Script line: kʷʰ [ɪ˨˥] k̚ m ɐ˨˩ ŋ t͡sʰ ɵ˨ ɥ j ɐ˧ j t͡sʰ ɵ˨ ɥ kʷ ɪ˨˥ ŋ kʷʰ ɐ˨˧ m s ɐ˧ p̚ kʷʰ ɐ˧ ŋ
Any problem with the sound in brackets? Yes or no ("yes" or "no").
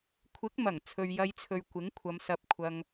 no